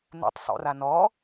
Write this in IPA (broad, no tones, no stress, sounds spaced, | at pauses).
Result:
n̪ ṵ tˤ sˤ o̰ r a n ɔ